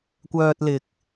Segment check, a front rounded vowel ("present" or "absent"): present